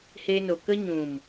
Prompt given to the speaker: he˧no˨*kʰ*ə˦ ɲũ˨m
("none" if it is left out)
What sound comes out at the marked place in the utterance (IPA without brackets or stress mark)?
k